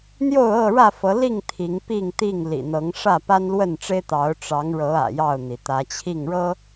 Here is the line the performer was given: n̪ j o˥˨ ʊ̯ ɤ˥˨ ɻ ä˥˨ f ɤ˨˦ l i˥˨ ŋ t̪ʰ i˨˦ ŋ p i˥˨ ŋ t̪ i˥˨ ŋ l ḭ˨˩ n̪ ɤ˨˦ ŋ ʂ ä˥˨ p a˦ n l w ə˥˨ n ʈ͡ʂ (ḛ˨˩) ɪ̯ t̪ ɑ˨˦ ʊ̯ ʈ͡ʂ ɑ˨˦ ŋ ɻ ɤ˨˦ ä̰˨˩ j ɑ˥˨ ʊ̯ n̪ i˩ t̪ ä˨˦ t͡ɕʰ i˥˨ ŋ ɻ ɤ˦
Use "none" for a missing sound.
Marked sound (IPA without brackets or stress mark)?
e˦